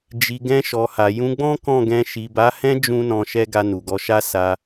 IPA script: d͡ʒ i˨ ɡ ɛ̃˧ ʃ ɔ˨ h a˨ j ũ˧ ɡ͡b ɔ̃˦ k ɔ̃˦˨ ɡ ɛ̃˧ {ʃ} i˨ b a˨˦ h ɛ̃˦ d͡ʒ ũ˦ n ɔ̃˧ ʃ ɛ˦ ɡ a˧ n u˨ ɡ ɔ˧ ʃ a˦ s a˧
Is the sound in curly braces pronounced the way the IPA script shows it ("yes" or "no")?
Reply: yes